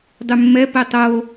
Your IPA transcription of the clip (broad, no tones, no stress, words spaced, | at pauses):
dˤʉmːɛ pɛtˤo